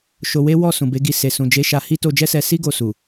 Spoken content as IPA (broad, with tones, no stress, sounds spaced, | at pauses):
ʃ o˧ w e˦ w ɔ˦˨ s ũ˨ b e˨˦ ɡ i˧ s e˨ s ũ˨ d͡ʒ e˨˦ ʃ a˧ h i˦ t o˧ d͡ʒ ɛ˦ s ɛ˧ s i˦ ɡ o˧ s u˨